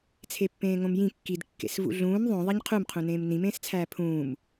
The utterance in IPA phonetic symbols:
t͡sʰ e pː ẽː ŋ õ m j ĩ kː i d kː ḛ s v ṵ ɮ ũː m ðˤ õ ðˤ e ɲ qʰ u m qʰ ũ n ẽː m n ĩ m ẽː s t͡sʰ æː pʰ ũː m

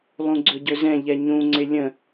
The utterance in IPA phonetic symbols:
lˠ ũ ɡ͡ǀ ɵ ɟ ɵ z ɛ̃ ʎ ɛ ɲ ũ ŋ͡ǀ ɪ lʲ ə̃

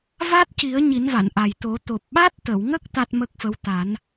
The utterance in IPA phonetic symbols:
v a˦˥ t̚ c i˨˩˦ ə̯ ɲ i˨˩˦ n v a˨˩˨ n ʔ a˨˩ j t̪ o˨˩˦ t̪ o˨˩ p̚ ɓ a˦˥ t̚ t̪ ə˨˩˨ w ŋ ə˦˥ k̚ t̪ a˦˥ t̚ m ə˦˥ k̚ f ə˧˥ w t̪ a˨˩˦ n

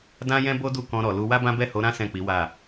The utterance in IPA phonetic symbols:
d ã˦ j ɛ̃˦ b o˦ d u˦˨ k ɔ̃˧ ɾ ɔ˨ l u˧ w a˦ b ã˦ b ɛ˦˨ h o˨˦ ɾ ã˦ s ɛ̃˦˨ k͡p i˨˦ w a˦˨

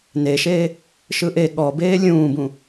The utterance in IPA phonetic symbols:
n e ʃ eː | ʃ ɯ ʔ e ɠ ɔ b eː lʲ ũː b ũ

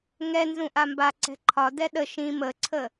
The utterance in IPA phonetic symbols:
ŋ ɛ n z ũ ʔ a m b a ǀ ɛ̤ ǃʰ ɒ d ɛ ɗ ə ʃ ĩ m ə ǀʰ ə

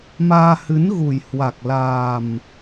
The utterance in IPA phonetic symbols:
m aː˧ h ɨ˨˦ n ɣ u˨˩ j h w a˨˩ k̚ l aː˨˩ m

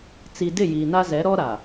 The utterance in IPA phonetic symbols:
t͡s i˨ d ɪ˦˨ j iː˨ n a˦ z ɛ˨˦ ɾ ɔ˦ ɾ a˨

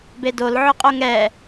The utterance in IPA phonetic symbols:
b e d o l ʕ ʊ qʼ o ŋ ɛ

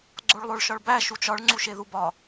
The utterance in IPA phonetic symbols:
ɡ͡ǀ o ɭ lˠ o ɭ ʃ ɒ ɭ b æ ʃ u t͡ʃ ɒ ɭ ŋ͡ǀ u ʃ e ð u b ɒ

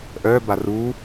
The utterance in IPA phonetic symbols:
ʔ œ b a r u

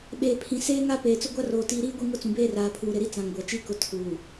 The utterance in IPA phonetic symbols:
ɓ eː˨ pʰ ĩ˨ s eː˦ ŋ a˦ p eː˨ t͡s ʊ˦ ɡʷ a˦ r oː˨ t iː˨ ɾ iː˦ ɡʷ i˦˨ ŋ ʊ˦˨ t͡s ũ˨ b eː˦ r aː˨ pʰ uː˨ ɾ ɪ˨ ɾ i˦ t͡s ã˨ ŋ ɡʷ a˨ t͡ʃ i˦˨ k ʊ˨ tʰ uː˨

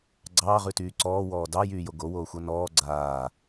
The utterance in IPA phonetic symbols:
ɡ͡ǀ ɑː ʁ ʉ t yː ǀ ɔː w ɔː d ɑ j yː j o ɡ o w oː xʷ ʌ n ɔː ɡ͡ǀ aː

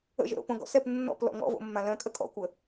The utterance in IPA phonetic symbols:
ə̰ ʒ ə̰ ɾ o̰ p õ ɡ ɔ̰ s ɛ p nː ɔ̰ p l ɔ̰ ŋ ɔ̰ v o̰ mː ã l œ̃ kʼ ə kʼ ɔ̰ kʷ ə

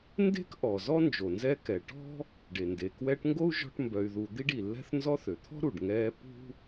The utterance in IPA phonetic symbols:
n d e̤˥ k ʔ ɔ˩ z ɔ˥ n d͡ʒ o˩ n z ɛ˦ k ɛ˩ ʈ ɔ̤˥ | ɖ e˩ n d e˩ k w ɛː˦ ʈ ŋ ɡ o˥ u̯ ʒ ɔ̤˦ ʈ m b œ˨ y̯ ð u˨ d̪ i˥ ɖ i˩ lː ɛ̤˥ θ n z ɔ˦ θ ø˩ t̪ʰ ɔ̤˥ ɾ u˩ ɖ ŋ ɛː˦ p ṳ˥

